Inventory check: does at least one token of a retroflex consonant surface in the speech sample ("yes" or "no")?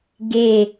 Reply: no